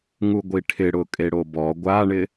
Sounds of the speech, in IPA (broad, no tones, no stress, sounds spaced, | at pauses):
ŋ u ɡʷ i ʈʰ ɪ ɽ ʊ kʼ e ɽ o b ɔ ɡʷ a ɳ ɪ